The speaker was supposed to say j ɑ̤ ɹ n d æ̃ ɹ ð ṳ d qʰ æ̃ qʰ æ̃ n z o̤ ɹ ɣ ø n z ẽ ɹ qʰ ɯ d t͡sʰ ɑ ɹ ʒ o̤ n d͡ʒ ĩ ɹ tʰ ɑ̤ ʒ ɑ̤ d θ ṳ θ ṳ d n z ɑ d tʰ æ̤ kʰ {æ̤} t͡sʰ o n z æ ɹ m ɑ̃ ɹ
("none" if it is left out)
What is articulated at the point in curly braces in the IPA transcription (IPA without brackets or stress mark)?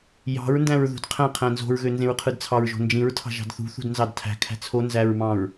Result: æ̤